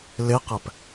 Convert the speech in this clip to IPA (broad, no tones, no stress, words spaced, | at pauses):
leqæp